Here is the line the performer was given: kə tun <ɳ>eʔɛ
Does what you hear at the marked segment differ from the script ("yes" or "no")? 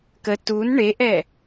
no